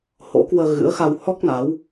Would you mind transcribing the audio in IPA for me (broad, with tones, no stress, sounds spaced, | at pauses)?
h o̰˧˥ k w əː˧ ɣ ɨ̰˧˥ ə̯ x a˧ w h ɔ˦˥ k̚ n a˨˦ w